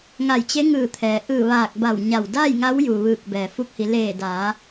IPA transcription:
ŋ a˧˩ j t͡ɕ e˧˥ ŋ ɯː˧˩ t̪ʰ ɛː˩ ʔ ɯː˧˩ ʋ aː˧˩ k̚ b a˧˩ w ɲ a˧˩ w d aː˥˨ j ŋ a˧˥ w j u˩ ʋ ɯː˧˩ k̚ b ɛː˩ f u˧ k̚ h i˩˧ l eː˧˩ d aː˩˧

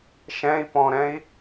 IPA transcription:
ʃ ɛ̃ i̯ p ɔ̃ ɾ ɛ̃ i̯

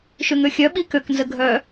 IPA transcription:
ʃ ø ŋ ø xʲ œ ɓ i k ø k n z ə ɡʱ œ

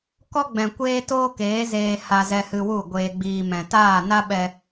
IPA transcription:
k ɔ˦ ɡ͡b ɛ̃˨ kʷ eː˦ t oː˦ k eː˨˦ z eː˧ h a˧ z ɛ˧ h ɨ˧ w u˦˨ ɡʷ eː˧ ɡ͡b iː˧ m ɛ̃˨ t aː˦˨ n a˦ ɓ ɛ˧

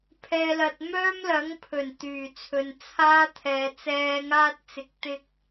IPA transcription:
pʰ ɛː˧ l ɐ˧ t̚ m œː˥ m l ɐ˨˥ ŋ pʰ ɵ˨˩ n t̪ yː˨˩ t͡sʰ ɵ˨ n t͡sʰ aː˥ t̪ʰ ɛː˨ t͡s ɛː˧ ŋ aː˥ t̚ t͡s ɪ˨˥ k̚ t̪ ɪ˥ k̚

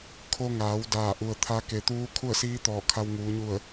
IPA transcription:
kʰ o˧ ŋ aː˩˧ w d aː˧˩ ʔ u˩ ə̯ t̪ʰ a˧˥ k e˩ t̪ uː˧˥ kʰ u˥˨ ə̯ s iː˧˥ t̪ ɔː˧˩ kʰ a˧ w ŋ uː˩˧ ɲ u˧˩ ə̯

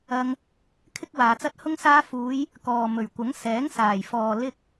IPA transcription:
ɐ˧ ŋ | kʰ ɪ˥ k̚ w aː˨ t͡s ɐ˥ t̚ h ʊ˥ ŋ s aː˧ f uː˨˧ j | k ɔː˨ m ɵ˨˩ ɥ kʷ ɐ˨˥ ŋ s ɛː˨˥ ŋ s aː˨˩ j f ɔː˨ l ɪ˧ k̚

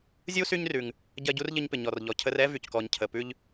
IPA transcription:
zʲ u˥ s y˦ ɲ r ʉ˩ ŋ | ɟ ɜ˦ ɟ u˥ r ʎ ə˦ ɲ p ɪ˨ ɲ ɔ˨ r ʎ ɔ˨ cʰ ə˦ r ɛ˥ v y˩ c k ɔ˨ ɲ cʰ ə˨ p ʉ˥ ʎ

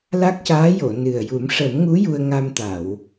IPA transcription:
l a˦˥ k̚ c aː˧˥ j o˨˩˨ n ɨ˨˩ ə̯ j u˨˩˦ m ʂ ə˨˩˦ m ŋ u˧˥ j u˧ ə̯ ŋ a˧ m t̪ a˨˩˨ w

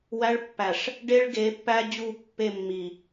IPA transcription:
w æ˦ ɭ pː æ˨ ʂ | ɖ e˦ ɭ ɡ e˨˦ pː æ˦ d͡ʑ u˦˨ pː e˦˨ mː i˨

